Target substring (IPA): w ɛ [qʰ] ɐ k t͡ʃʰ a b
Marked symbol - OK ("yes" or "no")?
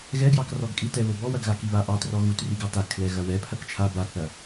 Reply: no